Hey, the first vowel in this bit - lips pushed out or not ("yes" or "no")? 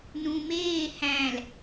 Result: yes